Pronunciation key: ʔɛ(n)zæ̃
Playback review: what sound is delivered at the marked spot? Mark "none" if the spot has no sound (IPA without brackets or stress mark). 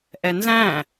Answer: n